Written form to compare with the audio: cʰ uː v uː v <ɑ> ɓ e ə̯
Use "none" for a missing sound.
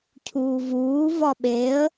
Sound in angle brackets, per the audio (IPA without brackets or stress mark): ɒ